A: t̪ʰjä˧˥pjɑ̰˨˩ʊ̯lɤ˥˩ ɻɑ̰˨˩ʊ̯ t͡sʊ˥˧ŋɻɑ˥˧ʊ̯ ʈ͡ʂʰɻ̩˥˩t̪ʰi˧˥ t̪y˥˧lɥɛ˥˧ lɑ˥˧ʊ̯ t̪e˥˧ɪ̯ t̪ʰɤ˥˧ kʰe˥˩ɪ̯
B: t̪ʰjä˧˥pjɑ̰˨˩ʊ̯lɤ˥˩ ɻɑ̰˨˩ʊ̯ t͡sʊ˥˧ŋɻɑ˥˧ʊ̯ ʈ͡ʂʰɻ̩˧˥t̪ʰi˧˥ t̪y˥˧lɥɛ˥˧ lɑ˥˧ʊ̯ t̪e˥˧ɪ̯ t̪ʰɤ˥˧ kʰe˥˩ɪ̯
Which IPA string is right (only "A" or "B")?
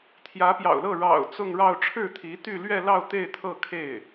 A